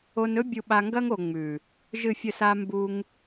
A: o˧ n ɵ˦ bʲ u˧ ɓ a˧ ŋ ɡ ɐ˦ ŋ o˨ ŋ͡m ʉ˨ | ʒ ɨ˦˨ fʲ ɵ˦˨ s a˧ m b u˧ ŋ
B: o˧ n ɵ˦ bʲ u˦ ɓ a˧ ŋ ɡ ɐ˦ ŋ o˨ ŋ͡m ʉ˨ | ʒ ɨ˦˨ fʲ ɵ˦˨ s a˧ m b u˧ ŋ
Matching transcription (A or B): A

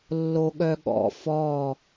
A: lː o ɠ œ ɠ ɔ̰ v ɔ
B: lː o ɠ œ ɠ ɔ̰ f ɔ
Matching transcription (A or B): B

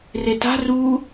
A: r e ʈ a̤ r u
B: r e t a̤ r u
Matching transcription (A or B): B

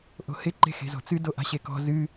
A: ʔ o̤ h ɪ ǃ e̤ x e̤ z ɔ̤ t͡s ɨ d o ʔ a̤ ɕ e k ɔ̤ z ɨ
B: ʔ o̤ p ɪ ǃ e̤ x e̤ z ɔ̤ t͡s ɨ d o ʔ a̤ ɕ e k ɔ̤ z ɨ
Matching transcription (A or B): A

